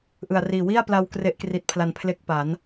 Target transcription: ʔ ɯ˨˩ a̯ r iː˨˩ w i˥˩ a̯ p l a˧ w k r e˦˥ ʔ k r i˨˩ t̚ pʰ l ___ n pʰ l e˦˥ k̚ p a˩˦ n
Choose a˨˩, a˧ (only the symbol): a˨˩